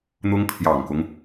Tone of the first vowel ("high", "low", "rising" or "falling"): high